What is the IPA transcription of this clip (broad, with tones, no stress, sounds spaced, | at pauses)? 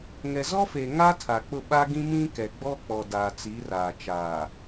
ŋ ɛ˨ z ɔ˦ f e˨ ŋ a˦ tʰ a˨ k͡p ʊ˦˨ ɓ a˦ ɡ ĩ˦ m ĩ˦ k ɛ˨ ɡ͡b ɔ˦ k͡p ɔ˨ d aː˨ t͡s i˨˦ r aː˨ t͡ʃ aː˨